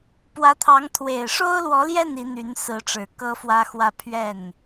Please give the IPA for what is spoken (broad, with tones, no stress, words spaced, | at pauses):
pwä˧˥t̪ʰɑ˧˥ŋ t̪ʰwe˨˩ɪ̯ʂo˥ʊ̯lwɔ˧˥ljɛ˥˩n i˧˥n̪y˧˥n sɹ̩˧˥ʈ͡ʂɻ̩˨˩ kɤ˥fwä˥xwä˥ pʰɥɛ˥˩n